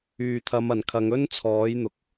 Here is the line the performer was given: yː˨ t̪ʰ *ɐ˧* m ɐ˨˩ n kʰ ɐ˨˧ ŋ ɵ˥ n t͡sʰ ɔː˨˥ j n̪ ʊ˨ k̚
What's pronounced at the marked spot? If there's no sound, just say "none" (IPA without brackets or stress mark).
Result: ɐ˨˧